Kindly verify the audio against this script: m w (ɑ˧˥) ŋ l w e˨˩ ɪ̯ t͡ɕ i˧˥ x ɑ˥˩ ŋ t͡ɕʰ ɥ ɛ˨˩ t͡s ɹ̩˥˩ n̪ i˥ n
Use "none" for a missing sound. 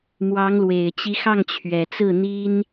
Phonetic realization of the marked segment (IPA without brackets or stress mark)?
ɑ˧˥